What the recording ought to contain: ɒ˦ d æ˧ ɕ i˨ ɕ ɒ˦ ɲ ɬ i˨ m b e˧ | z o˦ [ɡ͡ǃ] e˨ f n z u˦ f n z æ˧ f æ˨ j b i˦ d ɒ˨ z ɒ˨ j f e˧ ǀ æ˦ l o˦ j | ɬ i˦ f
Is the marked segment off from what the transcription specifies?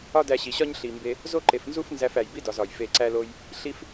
yes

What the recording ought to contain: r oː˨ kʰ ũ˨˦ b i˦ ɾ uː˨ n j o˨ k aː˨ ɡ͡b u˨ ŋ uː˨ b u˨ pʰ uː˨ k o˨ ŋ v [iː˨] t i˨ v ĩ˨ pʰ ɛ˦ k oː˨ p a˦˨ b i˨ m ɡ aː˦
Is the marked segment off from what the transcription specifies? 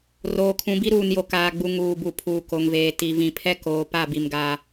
yes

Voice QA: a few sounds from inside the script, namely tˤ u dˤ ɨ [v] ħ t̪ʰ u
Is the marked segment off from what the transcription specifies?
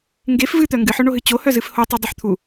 yes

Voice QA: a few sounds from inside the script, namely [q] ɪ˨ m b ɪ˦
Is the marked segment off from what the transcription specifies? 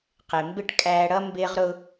no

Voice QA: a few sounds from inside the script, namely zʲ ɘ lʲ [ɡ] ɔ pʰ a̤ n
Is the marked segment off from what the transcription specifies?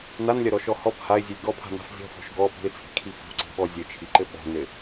no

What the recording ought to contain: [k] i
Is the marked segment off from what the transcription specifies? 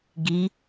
yes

